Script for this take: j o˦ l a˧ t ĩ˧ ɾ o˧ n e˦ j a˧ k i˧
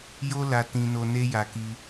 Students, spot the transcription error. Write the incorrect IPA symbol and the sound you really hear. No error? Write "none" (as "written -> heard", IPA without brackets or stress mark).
ɾ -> n